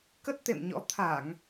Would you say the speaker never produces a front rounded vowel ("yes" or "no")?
yes